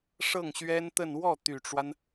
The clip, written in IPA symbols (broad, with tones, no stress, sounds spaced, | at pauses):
ʂ ɤ˥˩ ŋ ɕ ɥ ɛ˥ n t̪ ə˥˧ n w ɔ˥˩ t̪ y˨˩ ʈ͡ʂ w a˦ n